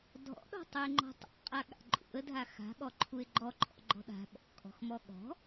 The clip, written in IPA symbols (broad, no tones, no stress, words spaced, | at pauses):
dʱɔ̰ɗɔ̤ tˤʉɪ̯ŋ͡ǃɔ̤tˤa̰qʼa ɠa̰ǃʼṵə̯dʱa xa̤ɠɔ ǃʰuɪ̯ɡ͡ǃɔǃʰɔ̰ ɡ͡ǃɔ̤ɗa̤ ɓɔ̰kʼɔ̤xmɔ ɠɔ̤